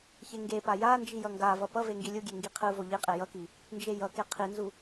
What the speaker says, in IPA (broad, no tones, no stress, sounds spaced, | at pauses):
ç e ŋ ɡ e p a j a n d͡ʒ i j ʌ ŋ ɡ a v ʌ p ʌ v e ŋ ɡ i lʲ u ɡʲ e ŋ ɡ i qʰ ɯ v o ʎ i qʼ e j ʌ k i | n d͡ʒ e j ʌ k e qʰ i n z u